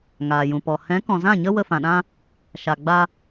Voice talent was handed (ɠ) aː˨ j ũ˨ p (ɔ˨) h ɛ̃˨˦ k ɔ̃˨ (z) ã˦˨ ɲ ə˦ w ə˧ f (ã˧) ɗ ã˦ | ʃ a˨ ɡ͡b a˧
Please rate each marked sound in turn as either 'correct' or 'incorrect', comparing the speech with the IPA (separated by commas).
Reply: incorrect, correct, correct, incorrect